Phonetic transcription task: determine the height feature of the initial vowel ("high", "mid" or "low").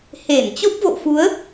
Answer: mid